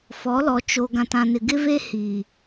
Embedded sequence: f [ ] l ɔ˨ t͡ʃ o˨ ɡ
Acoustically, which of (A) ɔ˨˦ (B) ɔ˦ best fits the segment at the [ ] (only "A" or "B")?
A